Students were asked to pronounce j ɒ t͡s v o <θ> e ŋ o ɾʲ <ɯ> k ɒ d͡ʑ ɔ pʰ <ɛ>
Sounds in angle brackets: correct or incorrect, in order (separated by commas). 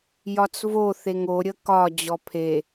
correct, incorrect, incorrect